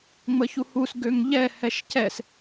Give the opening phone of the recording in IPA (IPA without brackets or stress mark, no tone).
ŋ͡m